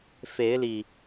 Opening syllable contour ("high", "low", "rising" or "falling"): rising